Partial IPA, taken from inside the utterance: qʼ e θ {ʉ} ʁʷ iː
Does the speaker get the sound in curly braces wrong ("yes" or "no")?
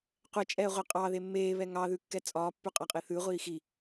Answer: no